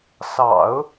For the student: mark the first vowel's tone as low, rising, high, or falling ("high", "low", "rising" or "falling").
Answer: low